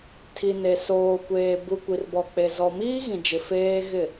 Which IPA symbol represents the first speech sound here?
tʰ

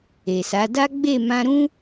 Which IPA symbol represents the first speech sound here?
e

